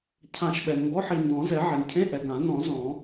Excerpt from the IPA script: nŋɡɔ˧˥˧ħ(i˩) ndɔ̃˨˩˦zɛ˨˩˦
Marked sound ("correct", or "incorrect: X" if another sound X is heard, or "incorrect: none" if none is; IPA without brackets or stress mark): correct